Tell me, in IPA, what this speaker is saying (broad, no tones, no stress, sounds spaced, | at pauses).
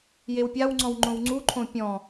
j e w pʲ a w ŋ͡ǀ ɔ̃ w ŋ͡ǃ õ w ŋ͡ǀ u ǃʰ õ pʲ ɔ̃